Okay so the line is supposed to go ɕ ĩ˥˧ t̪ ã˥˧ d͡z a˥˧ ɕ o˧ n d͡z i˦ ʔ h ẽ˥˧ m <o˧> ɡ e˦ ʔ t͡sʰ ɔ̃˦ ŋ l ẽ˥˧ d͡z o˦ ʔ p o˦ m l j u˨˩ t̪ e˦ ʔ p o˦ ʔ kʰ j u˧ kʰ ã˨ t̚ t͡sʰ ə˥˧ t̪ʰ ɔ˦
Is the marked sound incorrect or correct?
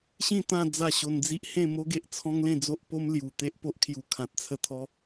incorrect: o˦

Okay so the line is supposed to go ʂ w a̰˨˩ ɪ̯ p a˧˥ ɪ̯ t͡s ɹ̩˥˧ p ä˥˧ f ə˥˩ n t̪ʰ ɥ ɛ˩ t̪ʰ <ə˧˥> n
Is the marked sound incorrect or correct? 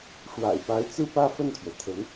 correct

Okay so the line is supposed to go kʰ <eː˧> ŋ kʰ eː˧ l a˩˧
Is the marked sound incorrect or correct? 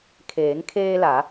incorrect: eː˩˧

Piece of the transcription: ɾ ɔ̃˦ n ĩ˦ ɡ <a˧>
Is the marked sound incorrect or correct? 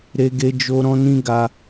correct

